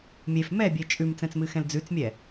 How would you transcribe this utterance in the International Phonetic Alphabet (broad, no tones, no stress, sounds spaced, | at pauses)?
mʲ e f m ɛ bʲ e t͡ʃʼ ʉ m t͡s ɛ̃ t͡s m ɨ x ɛ̃ l d͡z ʉ t͡s mʲ ɛ